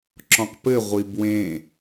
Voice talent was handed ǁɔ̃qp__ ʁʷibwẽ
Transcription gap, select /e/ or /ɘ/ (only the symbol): ɘ